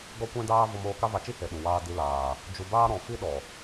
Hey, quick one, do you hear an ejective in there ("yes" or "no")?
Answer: no